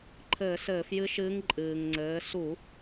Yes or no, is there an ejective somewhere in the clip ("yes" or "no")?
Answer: yes